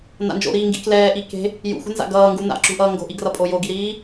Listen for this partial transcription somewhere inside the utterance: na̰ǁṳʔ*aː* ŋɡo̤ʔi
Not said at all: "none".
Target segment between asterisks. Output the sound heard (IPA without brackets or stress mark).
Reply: ʌː